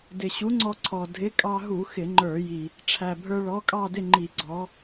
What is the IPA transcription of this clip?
d ɪ˨˩ ɕ u˨˥ ŋ͡ǀ ɔ˧ ǀʰ ɔ˨˩ dʱ ɪ˨˥ kʼ ɑ˧ ɦ u˧˩˧ x ɪ˧˩˧ ŋ͡ǃ ə˞˧˩˧ j i˨˩ | ʈ͡ʂʰ æ˨˩ bʱ ə˞˧ ɭ ɔ˨˥ kʼ ɑ˥˨ d ɪ˥˨ ŋ͡ǃ i˧˩˧ ɡ͡ǀ ɔ˨˥

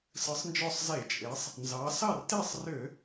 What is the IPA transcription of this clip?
s ɯ˩˧ sˤ n d͡ʒ ɔ˧˩ sˤ z e˧˩˧ t͡ʃʼ e˩˧ sˤ | n z ɑ˩˧ s ɑ˥˩ r t e˥˩ sˤ r ø˧˩˧

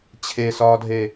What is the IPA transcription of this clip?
t͡ɕʰ e s ɒː dʱ e

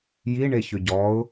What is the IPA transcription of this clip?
j i ɳ e ç ʏ ɟ ɔ ʊ̯

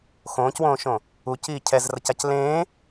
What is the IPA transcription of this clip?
x õː c w õː ʃ õ | u c iː cʰ ɛ z r ʌ c a c l ẽː

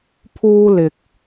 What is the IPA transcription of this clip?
pʰ uː˥ l ɪ˨ k̚

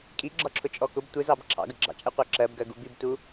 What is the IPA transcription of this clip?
kʼ i ɡ͡ǁ ɒ ǁʰ ʊ t͡ʃʼ ɔ k ʊ b tʷ ɪ z ɑ b ǁʰ ɑ̰ ɡ ə ɡ͡ǁ ɑ̰ t͡ʃʼ ɛ qʷ ɑ ǁ ɜ b ɡ ɜ ɡ u b i b t u

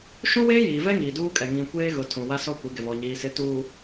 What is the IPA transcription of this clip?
ʃ ũ˦ w eː˦ j iː˨ v ɛ˦ ŋ iː˨ d uː˦ kʼ ɛ˨ ŋ ĩ˨ kʷ eː˦ ɣ ʊ˨ tʰ ũ˨ w a˦ s ɔ˦ kʷ i˨˦ ɡ ɪ˨ β ɔ˨ ɲ iː˨ s ɪ˨˦ t uː˨

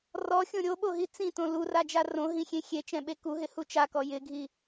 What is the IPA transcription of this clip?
r ɔ xʲ õ ɾʲ o ɓ o ɦ i t͡s ĩ t õ l u r a d͡ʒ a r õ ɦ ĩ xʲ ẽ xʲ e t͡ʃ ɛ̃ ɓ e k u ɦ ɪ h u t͡ʃ a k ɔ j ɪ ɡʱ i

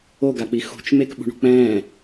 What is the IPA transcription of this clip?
o ɡ a k͡p i x ṳ t͡ʃ m e k ɓ ṳ ɳ ṳ k͡p ɛ̃ː

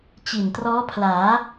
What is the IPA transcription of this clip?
t͡ɕ i˨˩ n t r ɔː˦˥ pʰ l aː˩˦

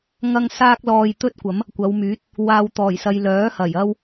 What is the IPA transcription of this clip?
ŋ ɐ˥ ŋ s aː˥ k̚ l ɔː˧ j t̪ ɵ˥ t̚ kʷ ɐ˨˥ m | kʷ ɐ˨˧ w m yː˨˥ t̚ | w aː˨ w t̪ ɔː˨˩ j s ɐ˨ j l œː˨˥ h ɐ˨˩ j ɐ˥ w

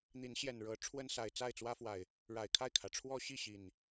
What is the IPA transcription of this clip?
n̪ i˨˦ n ɕ j ɛ˨˩ n ɻ ɤ˨˦ ʈ͡ʂʰ w ə˦ n s a˨˩ ɪ̯ t͡s a˥˨ ɪ̯ t͡s w ä˦ f w a˨˩ ɪ̯ | ɻ a˨˩ ɪ̯ kʰ a˥˨ ɪ̯ kʰ ä˩ ʈ͡ʂʰ w ɔ˦ ɕ i˥˨ ɕ i˨˩ n

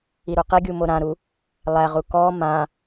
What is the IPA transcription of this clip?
i ɾ u q i ɡʲ u m o ɾ ã ɾ u | lˠ æ ʁ u k ɔ m ã

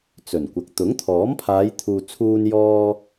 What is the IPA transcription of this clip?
t͡s ɵ˨˩ n kʷ ɐ˨ k̚ t̪ ʊ˨˥ ŋ t̪ʰ ɔː˨˥ m pʰ aː˨˧ j t̪ʰ uː˨ t͡sʰ uː˧ n j ɔː˧

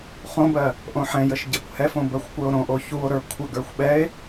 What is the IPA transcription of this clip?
χ õ b ɜ | ʔ õ ħ ɛ̃ j ə ʃ ɟ ɛ kʷ h ɛ f õ b ɜ xʷ kʷ ə˞ o̯ ɾ õ ʔ o ç u o̯ ɾ ə˞ kʷʰ ə ɡ ə˞ xʷ ɓ ɛ e̯

